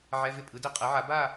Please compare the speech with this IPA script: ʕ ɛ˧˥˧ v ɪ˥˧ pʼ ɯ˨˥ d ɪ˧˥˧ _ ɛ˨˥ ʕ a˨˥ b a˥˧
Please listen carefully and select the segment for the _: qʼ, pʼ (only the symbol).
qʼ